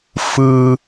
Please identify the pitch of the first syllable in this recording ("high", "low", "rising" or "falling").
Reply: low